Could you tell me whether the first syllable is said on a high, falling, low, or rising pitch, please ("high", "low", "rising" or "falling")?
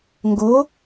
rising